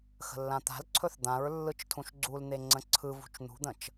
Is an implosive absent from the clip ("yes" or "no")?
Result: yes